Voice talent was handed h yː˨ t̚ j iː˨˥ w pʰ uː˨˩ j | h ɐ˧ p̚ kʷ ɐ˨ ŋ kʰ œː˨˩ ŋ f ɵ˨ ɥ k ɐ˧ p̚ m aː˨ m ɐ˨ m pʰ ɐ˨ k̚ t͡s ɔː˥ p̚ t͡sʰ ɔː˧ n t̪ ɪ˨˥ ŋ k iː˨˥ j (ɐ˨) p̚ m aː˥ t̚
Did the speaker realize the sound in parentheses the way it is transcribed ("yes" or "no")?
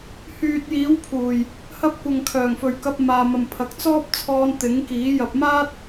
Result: no